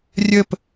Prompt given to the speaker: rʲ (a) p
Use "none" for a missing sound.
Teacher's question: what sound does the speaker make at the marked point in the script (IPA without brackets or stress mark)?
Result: ə